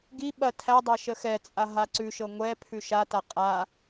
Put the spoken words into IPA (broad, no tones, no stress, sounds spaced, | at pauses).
ɡ i ɓ ɐ tʰ æ dˤ a ʃ ə x ɛ t͡sʼ a ɦ a ǀ ʉ ʃ ɤ ŋʷ ɛ pʰ ʉ ʃ a t a qʼ a